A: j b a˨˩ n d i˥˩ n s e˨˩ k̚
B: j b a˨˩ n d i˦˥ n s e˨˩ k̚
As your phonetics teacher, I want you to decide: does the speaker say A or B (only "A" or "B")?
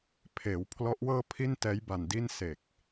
A